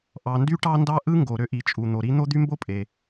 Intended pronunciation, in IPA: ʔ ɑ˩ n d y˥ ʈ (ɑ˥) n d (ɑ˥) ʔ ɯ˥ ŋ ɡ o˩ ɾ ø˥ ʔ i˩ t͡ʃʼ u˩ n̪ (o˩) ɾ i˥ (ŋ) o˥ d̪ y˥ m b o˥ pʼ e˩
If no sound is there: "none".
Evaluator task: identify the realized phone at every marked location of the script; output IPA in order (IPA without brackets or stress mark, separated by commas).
ɑ˥, ɑ˥, o˩, n̪